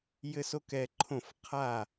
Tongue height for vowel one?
mid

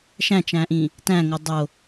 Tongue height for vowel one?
low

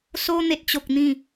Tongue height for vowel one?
mid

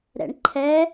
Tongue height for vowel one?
mid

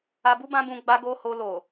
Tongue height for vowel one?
low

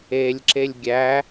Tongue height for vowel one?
mid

